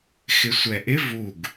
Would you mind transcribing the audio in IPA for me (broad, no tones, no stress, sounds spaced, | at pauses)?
x ɪ sʷ ɛ ʔ ɪ v u ɡ